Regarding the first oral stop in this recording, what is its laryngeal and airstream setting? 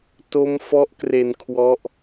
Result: plain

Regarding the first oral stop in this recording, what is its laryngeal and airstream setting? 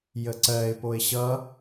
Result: click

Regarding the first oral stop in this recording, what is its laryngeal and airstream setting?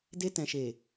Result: plain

